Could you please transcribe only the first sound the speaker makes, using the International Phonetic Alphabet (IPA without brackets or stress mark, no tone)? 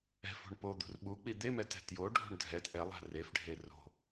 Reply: ɛ̤